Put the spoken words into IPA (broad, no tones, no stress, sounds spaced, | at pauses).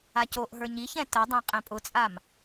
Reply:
a c o ʔ ɦ ə˞ ɲ i ç ɛ̃ t ə dˤ ɛ̃ qʼ ɛ̃ pʼ ʊ t͡sʼ a m